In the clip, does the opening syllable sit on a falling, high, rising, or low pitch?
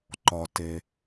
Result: low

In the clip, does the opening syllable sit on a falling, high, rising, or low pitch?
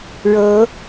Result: rising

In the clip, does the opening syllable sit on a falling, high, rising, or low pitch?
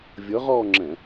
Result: rising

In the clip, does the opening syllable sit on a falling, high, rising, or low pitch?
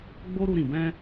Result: high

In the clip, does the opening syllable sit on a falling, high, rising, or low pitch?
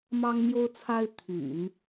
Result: high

